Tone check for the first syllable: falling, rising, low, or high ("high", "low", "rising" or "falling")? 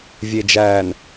low